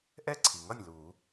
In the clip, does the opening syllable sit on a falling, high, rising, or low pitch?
falling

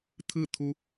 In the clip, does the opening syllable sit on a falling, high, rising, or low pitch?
falling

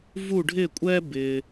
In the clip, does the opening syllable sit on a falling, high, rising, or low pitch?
falling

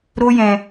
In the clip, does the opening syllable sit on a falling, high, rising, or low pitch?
high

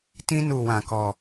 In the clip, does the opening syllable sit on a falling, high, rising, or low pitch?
high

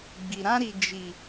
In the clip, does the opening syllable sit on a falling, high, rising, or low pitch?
low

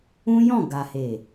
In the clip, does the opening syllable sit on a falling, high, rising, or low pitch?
high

